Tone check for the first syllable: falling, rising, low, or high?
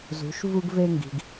rising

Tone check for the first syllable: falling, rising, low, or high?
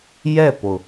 falling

